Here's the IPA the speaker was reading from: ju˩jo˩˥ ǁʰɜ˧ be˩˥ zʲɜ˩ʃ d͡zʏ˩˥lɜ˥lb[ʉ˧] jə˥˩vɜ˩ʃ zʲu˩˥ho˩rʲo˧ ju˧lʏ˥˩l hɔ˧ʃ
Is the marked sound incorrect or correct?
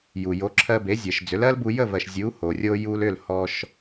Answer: incorrect